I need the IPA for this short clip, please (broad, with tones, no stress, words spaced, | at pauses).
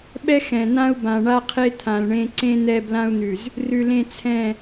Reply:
ɓɛ˦xɛ̃˨n̪ã˦u̯bã˨ ɳa˦qʰe˦ t̪ʰã˨lɳẽ˦ ǀẽ˦n̪ɛ˦˨ blã˦u̯n̪ʉ˨z | rʉ˨lẽ˦˨ t͡sʰɛ̃˦˨